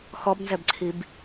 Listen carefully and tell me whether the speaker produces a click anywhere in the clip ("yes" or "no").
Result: yes